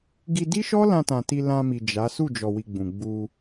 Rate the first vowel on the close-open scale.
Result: close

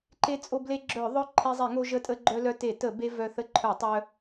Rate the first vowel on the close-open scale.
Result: mid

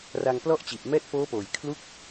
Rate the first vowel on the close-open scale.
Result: open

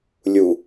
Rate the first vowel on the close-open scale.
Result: close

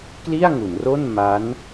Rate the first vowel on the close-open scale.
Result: close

